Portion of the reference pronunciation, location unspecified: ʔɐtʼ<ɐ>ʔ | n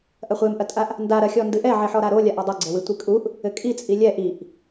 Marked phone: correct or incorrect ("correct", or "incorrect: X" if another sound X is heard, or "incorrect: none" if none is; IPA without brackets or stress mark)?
incorrect: a